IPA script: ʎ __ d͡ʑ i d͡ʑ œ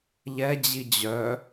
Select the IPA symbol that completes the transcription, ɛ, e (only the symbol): ɛ